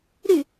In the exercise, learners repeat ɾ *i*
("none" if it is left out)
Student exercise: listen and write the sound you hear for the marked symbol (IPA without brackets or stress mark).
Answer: y